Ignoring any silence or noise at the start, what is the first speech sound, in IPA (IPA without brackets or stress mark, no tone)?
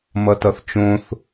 m